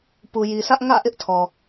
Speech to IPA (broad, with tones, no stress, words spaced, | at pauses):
pu˨ji˨sʰä˦ʔ ŋä̰˦˨ ʔɪ˦ʔtʰɔ˨